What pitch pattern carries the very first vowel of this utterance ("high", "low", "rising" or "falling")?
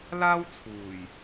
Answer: high